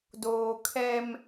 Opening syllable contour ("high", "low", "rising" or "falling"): low